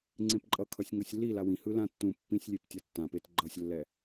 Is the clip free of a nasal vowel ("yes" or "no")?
no